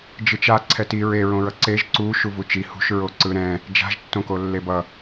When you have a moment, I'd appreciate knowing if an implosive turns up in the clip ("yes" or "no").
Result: no